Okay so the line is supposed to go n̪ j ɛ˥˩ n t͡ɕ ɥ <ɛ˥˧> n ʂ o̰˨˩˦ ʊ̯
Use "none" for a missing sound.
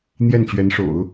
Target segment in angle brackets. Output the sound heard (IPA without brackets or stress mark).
ɛ˧˥